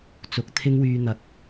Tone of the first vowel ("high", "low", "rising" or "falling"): rising